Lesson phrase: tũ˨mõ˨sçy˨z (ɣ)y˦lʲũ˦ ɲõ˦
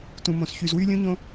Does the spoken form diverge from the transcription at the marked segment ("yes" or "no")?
yes